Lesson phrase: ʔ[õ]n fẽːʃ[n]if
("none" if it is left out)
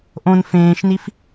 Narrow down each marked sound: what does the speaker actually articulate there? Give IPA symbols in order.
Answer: õ, n

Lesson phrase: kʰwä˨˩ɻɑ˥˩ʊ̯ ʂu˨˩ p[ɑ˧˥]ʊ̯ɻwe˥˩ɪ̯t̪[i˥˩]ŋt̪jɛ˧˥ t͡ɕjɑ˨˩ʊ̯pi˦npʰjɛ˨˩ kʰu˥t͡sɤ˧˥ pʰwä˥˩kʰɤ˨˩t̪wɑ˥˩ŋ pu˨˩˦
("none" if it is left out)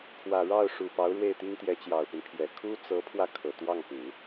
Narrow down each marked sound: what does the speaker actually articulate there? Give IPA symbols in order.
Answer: ɑ˧˥, i˥

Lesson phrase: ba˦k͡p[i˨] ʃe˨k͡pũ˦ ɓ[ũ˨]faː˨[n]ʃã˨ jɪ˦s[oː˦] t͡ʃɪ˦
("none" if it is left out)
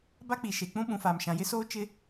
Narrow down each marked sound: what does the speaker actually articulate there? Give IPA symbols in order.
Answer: i˨, ũ˨, m, oː˦

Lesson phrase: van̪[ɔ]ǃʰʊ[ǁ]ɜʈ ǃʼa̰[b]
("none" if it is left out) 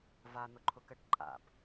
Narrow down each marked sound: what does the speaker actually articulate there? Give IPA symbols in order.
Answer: ʊ, k, b

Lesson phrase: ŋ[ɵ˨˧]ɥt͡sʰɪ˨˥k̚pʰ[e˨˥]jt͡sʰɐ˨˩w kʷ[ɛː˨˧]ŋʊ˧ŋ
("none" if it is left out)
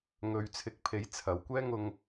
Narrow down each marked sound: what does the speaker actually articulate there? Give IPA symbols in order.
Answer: ɵ˨, e˨˧, ɛː˥

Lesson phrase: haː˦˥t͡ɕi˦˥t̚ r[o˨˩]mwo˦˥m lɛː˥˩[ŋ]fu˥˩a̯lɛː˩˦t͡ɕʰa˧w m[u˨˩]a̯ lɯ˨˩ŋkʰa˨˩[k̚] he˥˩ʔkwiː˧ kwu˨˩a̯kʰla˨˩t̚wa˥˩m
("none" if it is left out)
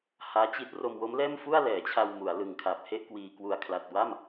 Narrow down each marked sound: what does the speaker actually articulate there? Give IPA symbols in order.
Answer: o˧, m, u˩˦, p̚

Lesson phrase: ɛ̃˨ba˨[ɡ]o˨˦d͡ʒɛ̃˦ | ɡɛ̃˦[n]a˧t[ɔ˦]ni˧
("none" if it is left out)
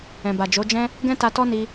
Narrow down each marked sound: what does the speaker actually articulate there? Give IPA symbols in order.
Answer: d͡ʒ, t, ɔ˦

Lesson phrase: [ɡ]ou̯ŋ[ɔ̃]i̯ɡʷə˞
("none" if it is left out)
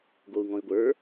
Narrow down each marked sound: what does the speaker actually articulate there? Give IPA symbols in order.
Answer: ɡ, ɔ̃

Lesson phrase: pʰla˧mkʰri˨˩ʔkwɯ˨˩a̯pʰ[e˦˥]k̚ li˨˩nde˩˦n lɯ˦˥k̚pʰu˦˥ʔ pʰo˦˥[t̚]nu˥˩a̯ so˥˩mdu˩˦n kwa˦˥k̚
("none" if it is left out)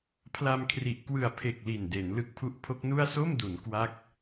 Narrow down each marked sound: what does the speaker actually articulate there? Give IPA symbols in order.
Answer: e˨˩, k̚

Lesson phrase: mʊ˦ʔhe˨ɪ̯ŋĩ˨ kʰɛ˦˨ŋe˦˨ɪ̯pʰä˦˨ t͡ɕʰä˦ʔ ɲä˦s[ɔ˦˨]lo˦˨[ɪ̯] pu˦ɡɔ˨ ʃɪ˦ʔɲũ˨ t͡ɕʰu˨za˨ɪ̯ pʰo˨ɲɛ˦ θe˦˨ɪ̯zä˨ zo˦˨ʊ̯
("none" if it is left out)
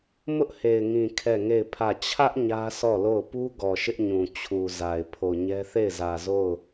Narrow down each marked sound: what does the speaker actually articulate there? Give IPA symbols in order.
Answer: ɔ˦˨, ʊ̯

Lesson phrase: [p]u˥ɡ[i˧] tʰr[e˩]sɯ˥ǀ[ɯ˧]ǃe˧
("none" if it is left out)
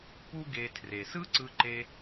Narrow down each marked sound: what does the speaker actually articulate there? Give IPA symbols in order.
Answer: p, e˧, e˩, ɯ˧

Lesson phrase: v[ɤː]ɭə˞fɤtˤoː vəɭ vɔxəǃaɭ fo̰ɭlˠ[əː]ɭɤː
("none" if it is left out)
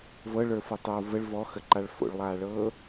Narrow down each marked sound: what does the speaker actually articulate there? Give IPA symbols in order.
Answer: ɤ, aː

